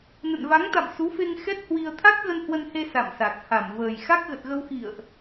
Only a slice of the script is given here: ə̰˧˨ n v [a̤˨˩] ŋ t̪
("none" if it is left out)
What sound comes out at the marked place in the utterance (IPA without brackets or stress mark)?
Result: a˨˦